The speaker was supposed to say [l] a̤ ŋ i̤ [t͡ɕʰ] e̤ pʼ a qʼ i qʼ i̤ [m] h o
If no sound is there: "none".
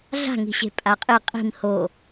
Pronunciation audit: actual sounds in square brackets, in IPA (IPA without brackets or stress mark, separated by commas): ɮ, ɕ, m